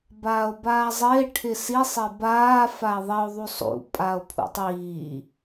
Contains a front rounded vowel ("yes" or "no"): no